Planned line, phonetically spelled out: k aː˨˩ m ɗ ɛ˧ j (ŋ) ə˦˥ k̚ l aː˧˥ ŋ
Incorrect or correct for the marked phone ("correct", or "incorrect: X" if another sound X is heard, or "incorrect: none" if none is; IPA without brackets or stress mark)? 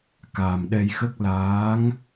incorrect: x